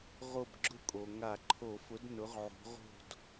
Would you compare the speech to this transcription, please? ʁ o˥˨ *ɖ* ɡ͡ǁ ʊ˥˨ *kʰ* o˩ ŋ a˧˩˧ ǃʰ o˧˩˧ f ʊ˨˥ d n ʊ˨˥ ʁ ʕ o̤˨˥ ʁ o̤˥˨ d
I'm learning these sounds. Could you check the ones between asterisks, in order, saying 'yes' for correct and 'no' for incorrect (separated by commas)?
no, no